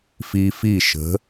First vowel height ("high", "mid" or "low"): high